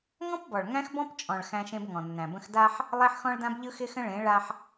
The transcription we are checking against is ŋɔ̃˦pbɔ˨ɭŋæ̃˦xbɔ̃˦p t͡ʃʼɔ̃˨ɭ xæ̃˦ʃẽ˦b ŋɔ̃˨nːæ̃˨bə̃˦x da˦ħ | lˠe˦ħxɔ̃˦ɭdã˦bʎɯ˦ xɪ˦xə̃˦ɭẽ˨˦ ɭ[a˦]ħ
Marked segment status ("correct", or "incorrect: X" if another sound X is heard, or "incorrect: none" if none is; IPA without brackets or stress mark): correct